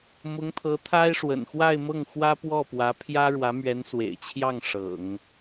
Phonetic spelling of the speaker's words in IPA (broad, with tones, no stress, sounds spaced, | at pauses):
m ʊ˧˥ ŋ t̪ʰ ɤ˧˥ t̪ʰ a˥ ɪ̯ ʂ w ə̰˨˩ n x w a˥˧ ɪ̯ m ɤ˥˩ ŋ x w ä˥ p w ɔ˥˩ p w ä˧˥ pʰ j ä˥ ɻ w ä˧˥ m ɥ ɛ˧˥ n s w ḛ˨˩ ɪ̯ t͡ɕʰ j ɑ˥˩ ŋ ʂ ɤ̰˨˩˦ ŋ